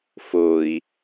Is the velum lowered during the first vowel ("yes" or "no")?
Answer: no